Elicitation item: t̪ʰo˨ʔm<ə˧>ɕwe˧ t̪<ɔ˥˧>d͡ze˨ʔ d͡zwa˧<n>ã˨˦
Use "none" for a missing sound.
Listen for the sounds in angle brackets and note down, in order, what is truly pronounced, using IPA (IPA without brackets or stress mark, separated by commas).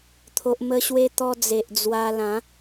ə˧, ɔ˧, l